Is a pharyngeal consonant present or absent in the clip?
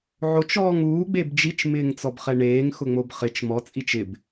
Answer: present